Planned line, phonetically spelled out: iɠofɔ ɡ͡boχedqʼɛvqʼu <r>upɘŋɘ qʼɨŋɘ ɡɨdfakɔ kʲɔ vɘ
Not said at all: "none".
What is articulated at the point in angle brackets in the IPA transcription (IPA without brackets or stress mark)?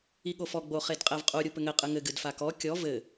ɾʲ